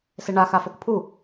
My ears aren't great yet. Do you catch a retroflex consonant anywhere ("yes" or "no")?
yes